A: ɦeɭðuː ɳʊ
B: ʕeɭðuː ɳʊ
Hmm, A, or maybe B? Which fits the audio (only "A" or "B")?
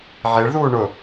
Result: B